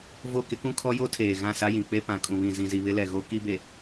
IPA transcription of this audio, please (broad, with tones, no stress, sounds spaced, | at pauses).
v o˦˨ k ɪ˦ k ũ˦ kʰ ɔ˦ j o˦ tʰ eː˨ ɣ ã˦˨ s a˦ j ĩ˨ k͡p e˦ p ã˨ kʼ ũ˨ β ĩ˨ z ĩ˨ z i˨ β ɪ˦ l ɛ˨ ɣ o˦ k i˦ b e˨